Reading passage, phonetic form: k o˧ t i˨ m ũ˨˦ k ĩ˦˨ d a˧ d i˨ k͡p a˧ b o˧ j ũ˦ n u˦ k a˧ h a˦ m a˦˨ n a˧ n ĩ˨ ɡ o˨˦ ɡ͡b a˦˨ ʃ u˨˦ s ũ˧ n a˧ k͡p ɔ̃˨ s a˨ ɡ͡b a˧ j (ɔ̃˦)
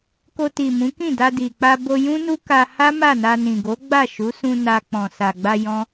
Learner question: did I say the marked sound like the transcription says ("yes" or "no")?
yes